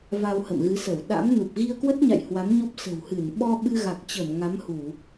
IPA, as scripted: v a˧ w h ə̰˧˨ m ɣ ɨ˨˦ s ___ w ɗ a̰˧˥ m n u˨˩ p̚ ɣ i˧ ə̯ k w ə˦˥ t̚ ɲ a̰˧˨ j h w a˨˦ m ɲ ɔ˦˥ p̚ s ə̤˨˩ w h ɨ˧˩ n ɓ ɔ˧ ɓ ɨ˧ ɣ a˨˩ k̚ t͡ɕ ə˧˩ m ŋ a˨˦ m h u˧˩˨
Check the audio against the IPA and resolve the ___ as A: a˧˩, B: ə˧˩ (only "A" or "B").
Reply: B